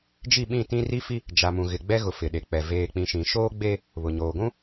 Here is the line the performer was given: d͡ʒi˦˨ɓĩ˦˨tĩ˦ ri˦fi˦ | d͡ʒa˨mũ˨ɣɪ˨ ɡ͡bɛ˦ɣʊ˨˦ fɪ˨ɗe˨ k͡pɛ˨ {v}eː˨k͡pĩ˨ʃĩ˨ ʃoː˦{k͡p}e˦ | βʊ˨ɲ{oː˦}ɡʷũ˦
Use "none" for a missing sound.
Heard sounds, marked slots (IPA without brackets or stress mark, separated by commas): v, ɡ͡b, oː˨